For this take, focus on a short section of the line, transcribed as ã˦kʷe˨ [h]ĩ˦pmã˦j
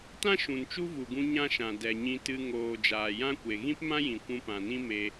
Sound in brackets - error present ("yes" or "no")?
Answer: yes